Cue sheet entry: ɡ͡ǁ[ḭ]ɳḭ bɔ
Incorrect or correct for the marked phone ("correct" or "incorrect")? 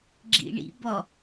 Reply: correct